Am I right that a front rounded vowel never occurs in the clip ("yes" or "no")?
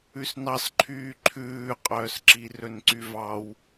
no